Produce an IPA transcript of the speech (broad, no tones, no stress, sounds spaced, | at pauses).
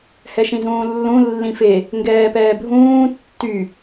h ɛ ʃ ĩ z ũː lː ũ lː ĩ f e | ŋ ɡ ɛː p ɛː bʱ ũː tː y